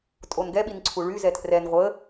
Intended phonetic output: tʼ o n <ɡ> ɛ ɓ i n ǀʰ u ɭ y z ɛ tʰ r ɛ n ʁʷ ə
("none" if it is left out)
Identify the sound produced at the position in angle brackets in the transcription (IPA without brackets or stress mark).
ɡ